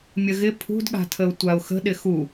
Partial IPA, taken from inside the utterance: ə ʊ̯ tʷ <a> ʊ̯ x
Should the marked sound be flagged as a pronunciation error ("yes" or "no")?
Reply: no